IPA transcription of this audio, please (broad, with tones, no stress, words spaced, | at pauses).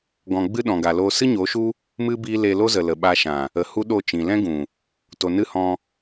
ɡɔ̃˨ɡ͡bɨ˧ ɗɔ̃˨ɡa˨loː˧ sɨ˦ɲo˨˦ʃu˦ | mɨ˧ biː˦ le˧lo˦zə˨ lə˨ɓa˧ʃã˨ | ə˨ hu˦ɗo˦˨t͡ʃĩ˨ lɛ̃˦ɡũ˨ | to˨nɨ˦hɔ̃˧